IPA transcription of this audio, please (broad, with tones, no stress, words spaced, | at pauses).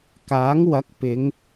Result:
kaː˨˥ŋ wɐ˨˥k̚pɪ˨˧ŋ